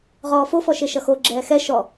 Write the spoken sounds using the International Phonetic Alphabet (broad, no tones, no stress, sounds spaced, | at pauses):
ʁ ɔː f o f ɔ ʃ e ʃ ʌ x o ɡ͡ǁ ɛː x ɛ ʃ ɔ